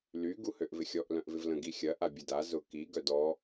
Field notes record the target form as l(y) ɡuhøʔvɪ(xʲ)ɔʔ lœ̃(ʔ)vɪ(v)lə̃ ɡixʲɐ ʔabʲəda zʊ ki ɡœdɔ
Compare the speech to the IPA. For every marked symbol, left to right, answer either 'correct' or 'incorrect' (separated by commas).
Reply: correct, correct, correct, correct